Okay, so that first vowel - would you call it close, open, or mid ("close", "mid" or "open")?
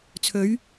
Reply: mid